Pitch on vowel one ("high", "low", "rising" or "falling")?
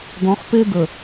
rising